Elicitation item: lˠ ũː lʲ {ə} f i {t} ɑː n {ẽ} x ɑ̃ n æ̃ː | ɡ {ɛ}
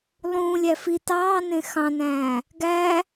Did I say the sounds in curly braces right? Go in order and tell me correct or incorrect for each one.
incorrect, correct, correct, incorrect

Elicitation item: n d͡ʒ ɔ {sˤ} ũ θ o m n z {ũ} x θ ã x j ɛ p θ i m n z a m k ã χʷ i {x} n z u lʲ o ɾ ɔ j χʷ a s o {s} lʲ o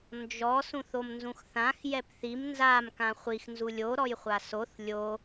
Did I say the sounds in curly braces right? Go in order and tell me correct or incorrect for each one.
incorrect, correct, correct, incorrect

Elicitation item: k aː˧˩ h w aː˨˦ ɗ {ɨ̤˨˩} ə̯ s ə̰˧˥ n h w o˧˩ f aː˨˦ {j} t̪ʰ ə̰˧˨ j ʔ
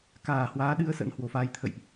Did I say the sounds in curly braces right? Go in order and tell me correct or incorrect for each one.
incorrect, correct

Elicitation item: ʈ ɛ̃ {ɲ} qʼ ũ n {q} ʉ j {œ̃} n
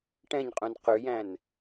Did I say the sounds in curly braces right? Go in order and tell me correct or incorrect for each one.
correct, correct, incorrect

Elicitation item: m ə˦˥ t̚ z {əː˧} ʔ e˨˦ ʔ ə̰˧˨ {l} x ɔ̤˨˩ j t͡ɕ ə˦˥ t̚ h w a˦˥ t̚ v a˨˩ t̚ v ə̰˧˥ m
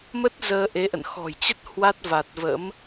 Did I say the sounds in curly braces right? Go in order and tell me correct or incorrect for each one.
correct, incorrect

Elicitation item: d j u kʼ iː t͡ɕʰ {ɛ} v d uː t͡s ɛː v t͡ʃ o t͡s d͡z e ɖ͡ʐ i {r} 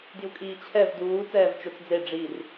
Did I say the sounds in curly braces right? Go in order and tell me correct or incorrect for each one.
correct, correct

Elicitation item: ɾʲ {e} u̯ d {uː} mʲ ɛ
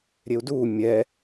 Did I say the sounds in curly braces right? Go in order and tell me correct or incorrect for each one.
correct, correct

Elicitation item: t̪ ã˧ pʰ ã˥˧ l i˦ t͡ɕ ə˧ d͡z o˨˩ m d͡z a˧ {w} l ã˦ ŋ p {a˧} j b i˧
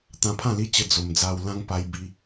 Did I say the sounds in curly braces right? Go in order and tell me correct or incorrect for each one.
correct, correct

